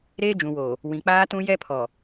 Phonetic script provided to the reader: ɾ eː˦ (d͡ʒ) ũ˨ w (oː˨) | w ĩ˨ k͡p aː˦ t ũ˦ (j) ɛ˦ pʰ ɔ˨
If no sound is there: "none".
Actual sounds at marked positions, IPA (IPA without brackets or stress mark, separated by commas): d͡ʒ, oː˨, j